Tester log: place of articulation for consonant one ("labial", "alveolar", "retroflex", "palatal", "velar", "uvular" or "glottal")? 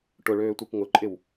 retroflex